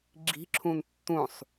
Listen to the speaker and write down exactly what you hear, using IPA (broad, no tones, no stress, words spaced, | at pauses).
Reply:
ɡ͡ǁi̤ǁʰũn tːũsˤ